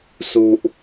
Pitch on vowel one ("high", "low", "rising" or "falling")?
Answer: low